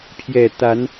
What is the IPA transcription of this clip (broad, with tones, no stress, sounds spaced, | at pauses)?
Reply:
pʰ j ɛ˨˩ t̪ a˨˦ n